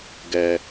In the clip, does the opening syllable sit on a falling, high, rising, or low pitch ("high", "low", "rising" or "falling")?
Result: low